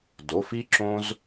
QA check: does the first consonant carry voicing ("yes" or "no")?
yes